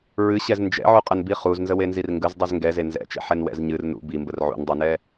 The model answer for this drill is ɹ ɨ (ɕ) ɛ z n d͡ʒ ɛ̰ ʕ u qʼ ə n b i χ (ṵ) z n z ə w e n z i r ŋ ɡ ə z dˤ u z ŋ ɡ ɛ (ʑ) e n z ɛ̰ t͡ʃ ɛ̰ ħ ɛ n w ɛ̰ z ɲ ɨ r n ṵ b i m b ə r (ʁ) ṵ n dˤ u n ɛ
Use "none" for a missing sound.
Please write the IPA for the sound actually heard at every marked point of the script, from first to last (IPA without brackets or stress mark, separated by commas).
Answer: ɕ, u, z, ʕ